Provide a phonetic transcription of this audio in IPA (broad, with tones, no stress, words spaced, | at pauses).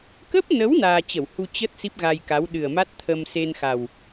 kə˦˥p̚nə˨˦w naː˧t͡ɕə˧˩whu˧ t͡ɕə˦˥t̚ si˦˥p̚ɣa˧jka˨˦w ɗɨ˨˩ə̯ma˦˥t̚ t̪ʰə˧mse˧nxa˨˩w